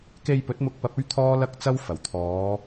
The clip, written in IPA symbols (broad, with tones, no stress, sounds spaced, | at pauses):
k e˧ j p ɵ˨˥ t̚ m ʊ˧ k̚ p ɐ˧ p̚ ɵ˥ ɥ t̪ʰ ɔː˥ l ɐ˥ k̚ t͡s ɐ˥ w f ɐ˨˩ w t̪ʰ ɔː˨˧